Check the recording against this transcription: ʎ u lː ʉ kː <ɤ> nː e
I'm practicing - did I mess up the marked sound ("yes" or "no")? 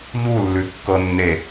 no